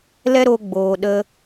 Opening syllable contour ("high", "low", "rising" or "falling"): high